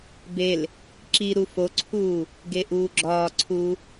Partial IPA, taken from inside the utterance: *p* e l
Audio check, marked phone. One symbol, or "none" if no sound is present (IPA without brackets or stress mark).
b